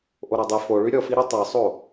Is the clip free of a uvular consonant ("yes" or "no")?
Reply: yes